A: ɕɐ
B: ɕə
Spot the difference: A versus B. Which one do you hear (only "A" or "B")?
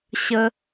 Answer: B